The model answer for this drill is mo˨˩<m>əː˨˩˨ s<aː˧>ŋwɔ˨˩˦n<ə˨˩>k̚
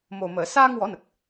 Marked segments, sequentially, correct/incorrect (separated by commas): correct, correct, correct